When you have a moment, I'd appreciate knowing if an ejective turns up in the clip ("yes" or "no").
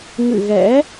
no